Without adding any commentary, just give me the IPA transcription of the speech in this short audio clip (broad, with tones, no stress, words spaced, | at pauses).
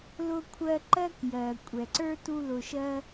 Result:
lʊ˧kʷʰɜ˧ ǃɜ˥k jɜ˩ kʷʼɛ˩ǀə˞˥ tu˥lʊ˧ʃɜ˥